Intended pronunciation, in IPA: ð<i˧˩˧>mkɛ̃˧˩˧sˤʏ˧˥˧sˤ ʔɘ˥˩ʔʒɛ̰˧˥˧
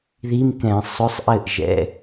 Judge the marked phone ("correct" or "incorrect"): incorrect